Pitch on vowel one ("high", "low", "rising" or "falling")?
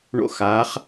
high